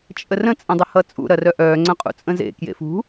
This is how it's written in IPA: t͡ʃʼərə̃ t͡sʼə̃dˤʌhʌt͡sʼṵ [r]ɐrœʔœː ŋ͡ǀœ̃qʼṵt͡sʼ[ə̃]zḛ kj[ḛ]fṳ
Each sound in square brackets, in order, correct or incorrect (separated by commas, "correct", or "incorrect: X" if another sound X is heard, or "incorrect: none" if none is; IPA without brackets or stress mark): incorrect: ɾ, correct, correct